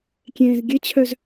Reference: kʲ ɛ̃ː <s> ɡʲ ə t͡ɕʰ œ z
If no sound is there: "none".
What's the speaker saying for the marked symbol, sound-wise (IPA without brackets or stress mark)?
z